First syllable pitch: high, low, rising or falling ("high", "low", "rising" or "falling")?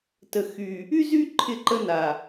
low